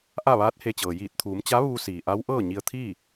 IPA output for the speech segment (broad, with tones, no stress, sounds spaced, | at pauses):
ʔ a˥˨ ʋ aː˧˥ t̚ h e˧ t͡ɕ ɤː˩ j iː˧˩ t̚ t̪ʰ uː˩˧ m t͡ɕ a˧˥ ʋ uː˧ s iː˩ ʔ a˧˥ w ʔ ɤː˥˨ ɲ i˧ ə̯ t̪ʰ iː˥˨